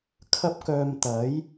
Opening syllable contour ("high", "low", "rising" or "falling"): high